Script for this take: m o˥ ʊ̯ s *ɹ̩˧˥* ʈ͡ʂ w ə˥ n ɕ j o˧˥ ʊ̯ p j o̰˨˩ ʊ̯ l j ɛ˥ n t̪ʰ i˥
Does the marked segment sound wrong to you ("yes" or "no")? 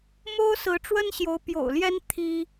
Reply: no